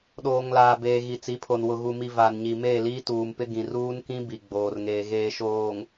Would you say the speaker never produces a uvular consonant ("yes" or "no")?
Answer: yes